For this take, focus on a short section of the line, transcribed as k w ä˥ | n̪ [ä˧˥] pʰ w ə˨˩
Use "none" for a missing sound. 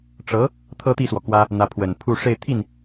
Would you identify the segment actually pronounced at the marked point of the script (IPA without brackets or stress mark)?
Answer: ä˧˥